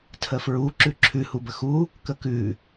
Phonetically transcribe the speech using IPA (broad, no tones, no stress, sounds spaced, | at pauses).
tʰ ə f ɹ u ǁ ʉ ǁʰ ʉ h u b ə x u | k ə k ʉ